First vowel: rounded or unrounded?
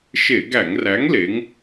unrounded